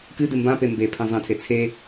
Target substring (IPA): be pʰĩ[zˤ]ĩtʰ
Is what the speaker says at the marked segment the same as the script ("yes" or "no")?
yes